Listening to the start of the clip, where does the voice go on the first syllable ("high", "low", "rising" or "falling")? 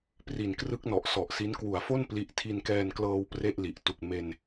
low